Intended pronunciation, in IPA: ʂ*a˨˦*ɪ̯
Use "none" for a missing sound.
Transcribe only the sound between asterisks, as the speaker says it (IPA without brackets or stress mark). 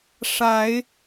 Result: a˨˦